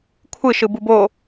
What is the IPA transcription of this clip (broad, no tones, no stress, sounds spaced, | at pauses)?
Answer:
kʷʰ ɯ ʃ ɯ b u b o